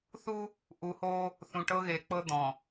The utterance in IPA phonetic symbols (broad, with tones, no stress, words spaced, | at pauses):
θu˦ | ʔu˨hoː˦ | θũ˨ʈɤ˦ɣe˨k͡pɤ˦ d̪ɔ̃˨